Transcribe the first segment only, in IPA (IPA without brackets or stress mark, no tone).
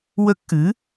w